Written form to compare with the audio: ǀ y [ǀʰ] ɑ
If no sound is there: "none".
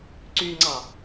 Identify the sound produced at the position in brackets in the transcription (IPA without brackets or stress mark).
ŋ͡ǀ